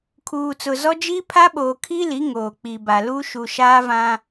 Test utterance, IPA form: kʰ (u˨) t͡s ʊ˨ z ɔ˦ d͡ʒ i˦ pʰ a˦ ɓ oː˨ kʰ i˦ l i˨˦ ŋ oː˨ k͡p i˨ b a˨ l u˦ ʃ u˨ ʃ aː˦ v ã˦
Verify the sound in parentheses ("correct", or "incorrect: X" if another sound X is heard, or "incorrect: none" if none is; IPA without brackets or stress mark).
incorrect: uː˨